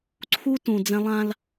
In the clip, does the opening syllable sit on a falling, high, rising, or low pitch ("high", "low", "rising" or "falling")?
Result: high